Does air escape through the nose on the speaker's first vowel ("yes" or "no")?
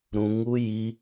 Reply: yes